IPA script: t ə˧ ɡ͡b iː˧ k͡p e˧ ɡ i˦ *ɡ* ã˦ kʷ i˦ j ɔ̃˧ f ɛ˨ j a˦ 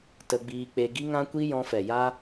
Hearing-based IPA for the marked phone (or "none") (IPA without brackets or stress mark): ŋ